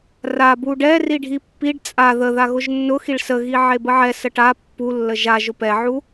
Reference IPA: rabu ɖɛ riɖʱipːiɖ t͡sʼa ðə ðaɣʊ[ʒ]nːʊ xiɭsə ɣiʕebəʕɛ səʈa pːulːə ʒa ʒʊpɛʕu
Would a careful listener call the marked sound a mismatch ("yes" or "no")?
no